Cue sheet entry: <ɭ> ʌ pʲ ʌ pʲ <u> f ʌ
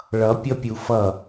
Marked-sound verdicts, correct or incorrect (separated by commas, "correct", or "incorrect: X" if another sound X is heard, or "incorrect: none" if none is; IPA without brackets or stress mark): correct, correct